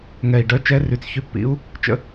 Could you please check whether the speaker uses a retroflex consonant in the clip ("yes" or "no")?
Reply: yes